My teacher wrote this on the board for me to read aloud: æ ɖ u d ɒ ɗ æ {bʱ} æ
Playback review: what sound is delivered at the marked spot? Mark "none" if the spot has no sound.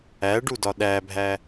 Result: bʱ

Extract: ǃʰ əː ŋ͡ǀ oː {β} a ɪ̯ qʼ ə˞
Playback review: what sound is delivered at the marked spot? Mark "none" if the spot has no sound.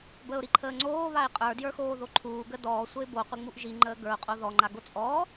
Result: β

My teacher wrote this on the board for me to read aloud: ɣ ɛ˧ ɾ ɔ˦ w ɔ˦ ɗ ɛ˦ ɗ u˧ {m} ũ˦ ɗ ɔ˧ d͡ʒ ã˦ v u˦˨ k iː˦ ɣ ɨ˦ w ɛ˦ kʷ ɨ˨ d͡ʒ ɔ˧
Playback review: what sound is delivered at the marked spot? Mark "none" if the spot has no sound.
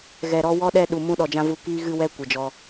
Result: m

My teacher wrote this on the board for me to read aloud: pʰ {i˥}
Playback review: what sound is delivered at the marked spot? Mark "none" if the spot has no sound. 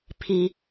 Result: i˩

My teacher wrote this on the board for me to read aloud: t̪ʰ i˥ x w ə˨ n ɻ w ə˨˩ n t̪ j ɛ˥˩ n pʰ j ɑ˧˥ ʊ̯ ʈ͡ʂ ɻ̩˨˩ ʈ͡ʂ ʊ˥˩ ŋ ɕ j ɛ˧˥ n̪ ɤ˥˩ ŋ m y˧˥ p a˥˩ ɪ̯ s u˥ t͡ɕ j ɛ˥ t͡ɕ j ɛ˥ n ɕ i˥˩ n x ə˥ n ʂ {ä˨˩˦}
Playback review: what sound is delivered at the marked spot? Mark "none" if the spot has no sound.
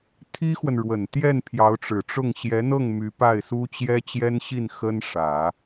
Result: ä˨˩˦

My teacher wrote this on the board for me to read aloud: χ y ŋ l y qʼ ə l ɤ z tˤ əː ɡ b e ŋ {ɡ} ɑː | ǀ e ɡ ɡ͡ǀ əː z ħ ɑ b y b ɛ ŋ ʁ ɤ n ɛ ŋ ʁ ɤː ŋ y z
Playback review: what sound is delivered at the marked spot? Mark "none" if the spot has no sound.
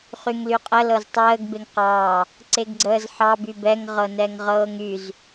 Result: q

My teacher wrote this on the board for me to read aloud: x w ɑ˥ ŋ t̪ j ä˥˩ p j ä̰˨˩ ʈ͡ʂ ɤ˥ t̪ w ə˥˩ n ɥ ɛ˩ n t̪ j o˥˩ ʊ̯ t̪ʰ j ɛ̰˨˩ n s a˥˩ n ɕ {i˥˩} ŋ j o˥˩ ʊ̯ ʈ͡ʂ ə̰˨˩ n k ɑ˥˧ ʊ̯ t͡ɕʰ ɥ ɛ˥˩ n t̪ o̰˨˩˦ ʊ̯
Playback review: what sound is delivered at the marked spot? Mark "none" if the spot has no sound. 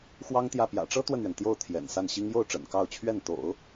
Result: i˥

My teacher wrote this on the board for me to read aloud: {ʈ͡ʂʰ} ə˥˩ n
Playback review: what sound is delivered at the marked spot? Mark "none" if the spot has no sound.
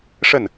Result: ʂ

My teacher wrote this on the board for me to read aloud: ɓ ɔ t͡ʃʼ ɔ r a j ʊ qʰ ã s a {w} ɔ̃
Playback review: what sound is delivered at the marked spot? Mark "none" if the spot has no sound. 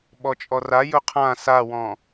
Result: w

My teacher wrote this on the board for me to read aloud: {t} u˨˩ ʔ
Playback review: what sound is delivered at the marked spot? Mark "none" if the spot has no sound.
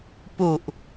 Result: p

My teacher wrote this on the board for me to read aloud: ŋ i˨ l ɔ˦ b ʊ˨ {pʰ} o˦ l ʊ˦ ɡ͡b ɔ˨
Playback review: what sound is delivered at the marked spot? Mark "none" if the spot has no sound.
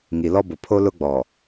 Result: pʰ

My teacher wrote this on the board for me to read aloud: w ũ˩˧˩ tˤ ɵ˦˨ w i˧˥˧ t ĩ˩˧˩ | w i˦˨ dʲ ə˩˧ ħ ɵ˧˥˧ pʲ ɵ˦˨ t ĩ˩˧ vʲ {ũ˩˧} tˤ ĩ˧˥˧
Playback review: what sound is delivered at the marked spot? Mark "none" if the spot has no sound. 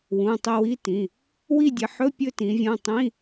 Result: ũ˩˧˩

